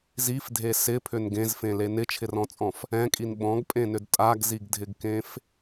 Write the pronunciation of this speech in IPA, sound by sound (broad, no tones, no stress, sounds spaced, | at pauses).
z i f dʱ e s ɪ pʰ ʏ n ɡ ẽ z f ẽ l e n ɪ t͡ʃʰ ɪ r ɔ̃ t͡sʼ ɔ̃ f | ɛ̃ kʼ i n ɓ ɔ̃ ɡ pʼ ẽ n ʏ d tʼ a ɡ z i ɡ dʱ ɪ ɡ k ẽ f